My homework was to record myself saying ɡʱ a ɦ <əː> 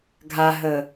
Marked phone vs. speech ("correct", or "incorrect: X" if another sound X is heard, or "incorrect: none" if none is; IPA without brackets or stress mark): correct